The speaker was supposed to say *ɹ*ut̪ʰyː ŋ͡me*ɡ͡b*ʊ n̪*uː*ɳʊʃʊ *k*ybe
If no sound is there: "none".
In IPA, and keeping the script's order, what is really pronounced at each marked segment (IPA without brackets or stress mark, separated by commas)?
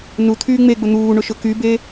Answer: n, ɡ͡b, uː, k